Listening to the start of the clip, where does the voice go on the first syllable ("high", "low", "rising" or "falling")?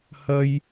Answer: high